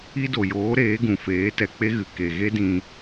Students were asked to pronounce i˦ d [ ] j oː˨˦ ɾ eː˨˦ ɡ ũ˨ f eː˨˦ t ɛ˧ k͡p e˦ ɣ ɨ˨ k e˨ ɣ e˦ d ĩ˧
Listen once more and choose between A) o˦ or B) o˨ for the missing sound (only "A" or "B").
B